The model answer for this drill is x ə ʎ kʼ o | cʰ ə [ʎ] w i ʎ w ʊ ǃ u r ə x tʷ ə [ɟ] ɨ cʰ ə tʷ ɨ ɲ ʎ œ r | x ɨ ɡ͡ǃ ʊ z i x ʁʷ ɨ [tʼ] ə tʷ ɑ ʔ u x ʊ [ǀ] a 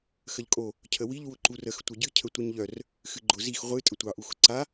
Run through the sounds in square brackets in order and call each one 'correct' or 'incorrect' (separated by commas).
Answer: incorrect, correct, correct, correct